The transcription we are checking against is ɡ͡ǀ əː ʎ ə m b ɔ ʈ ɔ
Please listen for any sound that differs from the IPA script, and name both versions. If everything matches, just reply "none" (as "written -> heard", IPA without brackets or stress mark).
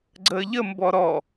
ʈ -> ɾ